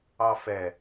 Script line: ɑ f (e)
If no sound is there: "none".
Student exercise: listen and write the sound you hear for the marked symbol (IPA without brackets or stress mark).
ɛ